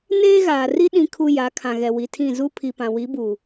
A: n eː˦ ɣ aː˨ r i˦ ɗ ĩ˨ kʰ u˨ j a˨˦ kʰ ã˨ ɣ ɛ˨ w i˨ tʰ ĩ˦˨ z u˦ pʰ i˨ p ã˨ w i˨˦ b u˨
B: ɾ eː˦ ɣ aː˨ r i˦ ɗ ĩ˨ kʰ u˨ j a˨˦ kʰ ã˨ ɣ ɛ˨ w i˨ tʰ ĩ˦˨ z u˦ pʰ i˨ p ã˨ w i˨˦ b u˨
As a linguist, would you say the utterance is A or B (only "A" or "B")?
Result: A